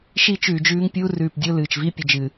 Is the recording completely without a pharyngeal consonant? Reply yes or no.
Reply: yes